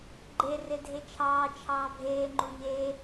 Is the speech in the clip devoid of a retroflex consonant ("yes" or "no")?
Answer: yes